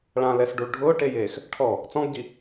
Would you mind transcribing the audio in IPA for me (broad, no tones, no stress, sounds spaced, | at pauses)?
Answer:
ɭ ã l ɛ s ɖ u ɭ ɖʱ ʊː ʈ e j eː x | ʈʰ ɔ | t͡s ɔ̃ ɡ ɟ i